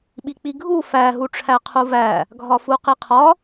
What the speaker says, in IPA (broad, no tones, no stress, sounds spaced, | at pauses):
ɓ i k͡p i ɡʱ u f æ ɦ u ʈ͡ʂʰ æ qʰ u v æ | ɡʱ ɒ f u q i qʰ ɒ